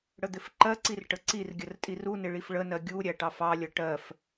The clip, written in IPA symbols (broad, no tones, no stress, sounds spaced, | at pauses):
ɽ ə d̪ ɪ f ǃ ɜ ǀ i r ʈ ə ǀ i r ɡʲ ə r tʼ i r u n ɪ ɭ i f ɭ ə n ɜ ɡʲ u ɾʲ æ ʈ ɑ f ɑ lʲ ʌ ʈ ɜ f